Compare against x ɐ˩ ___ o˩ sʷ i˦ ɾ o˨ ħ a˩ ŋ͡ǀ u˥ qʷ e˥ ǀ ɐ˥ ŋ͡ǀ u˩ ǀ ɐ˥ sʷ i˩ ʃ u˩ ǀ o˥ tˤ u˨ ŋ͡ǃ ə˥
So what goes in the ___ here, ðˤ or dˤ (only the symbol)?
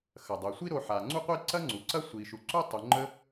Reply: dˤ